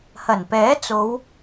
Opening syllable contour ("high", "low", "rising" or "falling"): low